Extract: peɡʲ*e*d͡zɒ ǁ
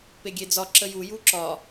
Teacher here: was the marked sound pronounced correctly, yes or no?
yes